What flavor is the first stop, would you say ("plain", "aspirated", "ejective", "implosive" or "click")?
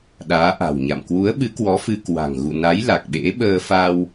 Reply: implosive